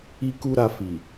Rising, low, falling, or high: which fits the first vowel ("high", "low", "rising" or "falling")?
high